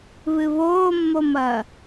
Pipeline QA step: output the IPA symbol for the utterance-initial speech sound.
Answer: β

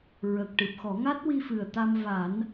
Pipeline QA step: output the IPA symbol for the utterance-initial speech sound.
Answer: ɹ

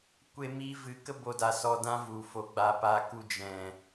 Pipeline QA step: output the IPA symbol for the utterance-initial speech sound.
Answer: kʷ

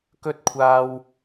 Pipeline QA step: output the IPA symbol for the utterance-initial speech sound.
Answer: k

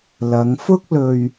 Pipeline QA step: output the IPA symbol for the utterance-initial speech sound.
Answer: l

